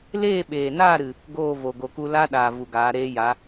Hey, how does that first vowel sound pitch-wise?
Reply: falling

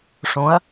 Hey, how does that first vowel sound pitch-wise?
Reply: rising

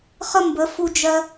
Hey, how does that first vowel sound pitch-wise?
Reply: high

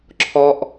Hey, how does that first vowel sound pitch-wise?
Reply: high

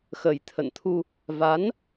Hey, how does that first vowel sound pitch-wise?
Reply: low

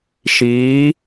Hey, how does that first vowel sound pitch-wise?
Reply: rising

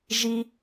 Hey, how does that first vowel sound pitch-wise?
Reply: high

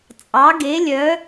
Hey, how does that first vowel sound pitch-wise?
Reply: rising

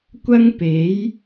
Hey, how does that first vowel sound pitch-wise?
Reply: high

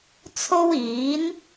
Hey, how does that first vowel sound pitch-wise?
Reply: high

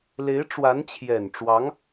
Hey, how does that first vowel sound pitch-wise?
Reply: rising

